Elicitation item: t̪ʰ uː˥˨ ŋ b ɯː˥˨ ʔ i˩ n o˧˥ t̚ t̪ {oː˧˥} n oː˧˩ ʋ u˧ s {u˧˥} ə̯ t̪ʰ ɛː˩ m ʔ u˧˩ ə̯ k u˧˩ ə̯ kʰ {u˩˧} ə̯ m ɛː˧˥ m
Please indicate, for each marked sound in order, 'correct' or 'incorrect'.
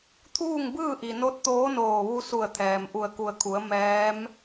correct, incorrect: u˧˩, correct

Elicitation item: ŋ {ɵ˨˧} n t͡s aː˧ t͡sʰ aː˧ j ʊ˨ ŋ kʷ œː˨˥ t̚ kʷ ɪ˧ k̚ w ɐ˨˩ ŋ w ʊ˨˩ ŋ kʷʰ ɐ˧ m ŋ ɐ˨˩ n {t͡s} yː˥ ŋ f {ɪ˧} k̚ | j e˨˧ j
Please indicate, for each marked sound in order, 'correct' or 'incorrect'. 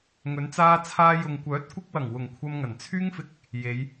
correct, incorrect: t͡sʰ, correct

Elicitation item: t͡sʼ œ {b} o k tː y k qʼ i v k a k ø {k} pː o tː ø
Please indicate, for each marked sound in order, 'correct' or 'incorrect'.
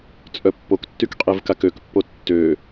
incorrect: pː, correct

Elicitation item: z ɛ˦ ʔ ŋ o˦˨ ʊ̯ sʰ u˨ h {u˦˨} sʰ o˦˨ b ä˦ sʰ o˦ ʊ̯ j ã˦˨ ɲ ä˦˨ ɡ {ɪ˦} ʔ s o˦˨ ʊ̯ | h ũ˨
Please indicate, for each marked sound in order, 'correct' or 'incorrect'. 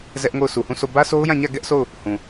incorrect: ũ˦˨, incorrect: ɛ˦

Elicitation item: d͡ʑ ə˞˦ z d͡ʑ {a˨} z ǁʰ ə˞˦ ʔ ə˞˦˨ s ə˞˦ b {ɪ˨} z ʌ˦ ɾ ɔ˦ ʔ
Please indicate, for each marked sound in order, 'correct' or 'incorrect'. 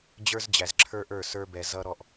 incorrect: æ˨, incorrect: ɛ˨

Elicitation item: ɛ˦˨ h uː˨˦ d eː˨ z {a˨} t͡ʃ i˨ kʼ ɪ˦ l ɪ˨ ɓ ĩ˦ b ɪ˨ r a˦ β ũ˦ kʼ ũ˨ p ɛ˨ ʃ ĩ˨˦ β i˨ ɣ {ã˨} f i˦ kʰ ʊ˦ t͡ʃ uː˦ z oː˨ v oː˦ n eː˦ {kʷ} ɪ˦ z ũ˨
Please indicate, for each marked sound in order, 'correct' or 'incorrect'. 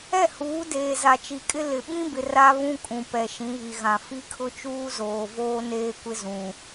correct, correct, correct

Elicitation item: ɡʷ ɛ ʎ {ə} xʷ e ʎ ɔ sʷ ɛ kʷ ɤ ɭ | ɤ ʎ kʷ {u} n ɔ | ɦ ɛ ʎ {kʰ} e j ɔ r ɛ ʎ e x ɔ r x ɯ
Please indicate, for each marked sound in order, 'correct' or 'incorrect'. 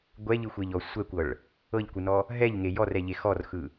incorrect: ɯ, incorrect: ɯ, incorrect: ŋ

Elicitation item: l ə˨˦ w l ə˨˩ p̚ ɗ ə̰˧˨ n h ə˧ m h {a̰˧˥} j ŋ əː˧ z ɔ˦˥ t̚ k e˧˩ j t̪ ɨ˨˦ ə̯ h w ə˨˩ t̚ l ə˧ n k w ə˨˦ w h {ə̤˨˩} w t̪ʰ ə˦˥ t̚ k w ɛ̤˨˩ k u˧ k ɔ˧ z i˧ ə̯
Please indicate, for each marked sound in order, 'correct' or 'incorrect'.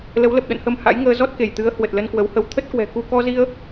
correct, incorrect: ə˧

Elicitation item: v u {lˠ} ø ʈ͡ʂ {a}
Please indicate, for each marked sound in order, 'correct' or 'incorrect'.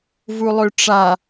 correct, correct

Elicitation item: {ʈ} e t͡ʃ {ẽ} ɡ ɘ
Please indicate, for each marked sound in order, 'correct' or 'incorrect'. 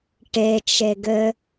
correct, incorrect: e

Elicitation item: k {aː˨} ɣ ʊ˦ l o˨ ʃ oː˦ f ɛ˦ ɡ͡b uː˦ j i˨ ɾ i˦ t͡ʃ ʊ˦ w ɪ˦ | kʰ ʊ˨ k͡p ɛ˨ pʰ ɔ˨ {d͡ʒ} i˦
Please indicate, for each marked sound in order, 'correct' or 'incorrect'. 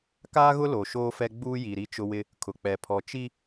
incorrect: aː˦, incorrect: t͡ʃ

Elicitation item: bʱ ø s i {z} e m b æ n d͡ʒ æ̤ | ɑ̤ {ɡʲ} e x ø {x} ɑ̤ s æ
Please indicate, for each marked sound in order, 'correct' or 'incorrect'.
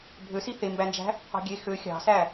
incorrect: θ, correct, incorrect: xʲ

